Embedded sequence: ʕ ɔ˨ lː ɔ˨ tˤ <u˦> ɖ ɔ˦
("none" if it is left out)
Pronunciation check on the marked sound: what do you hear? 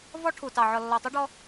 u˦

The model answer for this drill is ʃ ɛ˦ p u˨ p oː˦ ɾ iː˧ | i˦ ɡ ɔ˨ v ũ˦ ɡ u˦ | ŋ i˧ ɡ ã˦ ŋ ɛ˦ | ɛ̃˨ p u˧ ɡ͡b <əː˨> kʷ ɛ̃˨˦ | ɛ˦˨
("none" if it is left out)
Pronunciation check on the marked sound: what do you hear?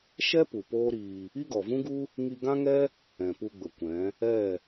ə˨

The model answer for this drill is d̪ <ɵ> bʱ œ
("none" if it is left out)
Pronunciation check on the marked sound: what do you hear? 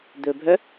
ɵ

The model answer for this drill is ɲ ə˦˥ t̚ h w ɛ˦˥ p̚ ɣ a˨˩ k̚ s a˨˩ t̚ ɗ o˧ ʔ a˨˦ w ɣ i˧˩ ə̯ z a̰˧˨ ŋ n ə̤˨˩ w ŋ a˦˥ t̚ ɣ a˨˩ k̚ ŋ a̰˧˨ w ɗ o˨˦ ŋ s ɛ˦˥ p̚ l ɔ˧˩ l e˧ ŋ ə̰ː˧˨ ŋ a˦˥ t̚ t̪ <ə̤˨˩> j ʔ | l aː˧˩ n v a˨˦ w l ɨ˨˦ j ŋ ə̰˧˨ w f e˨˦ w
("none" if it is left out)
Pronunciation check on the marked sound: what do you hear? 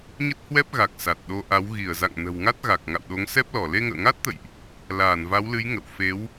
ə̰˧˨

